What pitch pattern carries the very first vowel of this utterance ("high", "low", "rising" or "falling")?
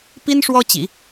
high